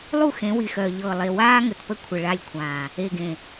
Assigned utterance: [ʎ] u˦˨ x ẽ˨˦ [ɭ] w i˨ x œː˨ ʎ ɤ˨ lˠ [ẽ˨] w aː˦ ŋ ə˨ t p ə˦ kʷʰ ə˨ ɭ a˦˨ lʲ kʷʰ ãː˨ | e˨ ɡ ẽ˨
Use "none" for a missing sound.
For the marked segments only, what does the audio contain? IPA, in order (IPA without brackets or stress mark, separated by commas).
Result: lˠ, none, e˨